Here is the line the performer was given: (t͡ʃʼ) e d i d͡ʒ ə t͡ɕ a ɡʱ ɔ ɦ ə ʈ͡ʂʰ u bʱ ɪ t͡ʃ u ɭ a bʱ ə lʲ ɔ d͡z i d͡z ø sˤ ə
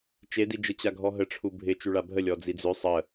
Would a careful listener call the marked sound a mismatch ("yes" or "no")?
yes